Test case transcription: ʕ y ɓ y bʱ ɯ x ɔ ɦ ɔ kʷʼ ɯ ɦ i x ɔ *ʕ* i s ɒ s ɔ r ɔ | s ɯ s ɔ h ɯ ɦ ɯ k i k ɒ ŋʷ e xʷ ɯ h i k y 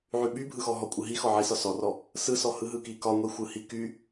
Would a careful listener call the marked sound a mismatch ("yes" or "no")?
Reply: no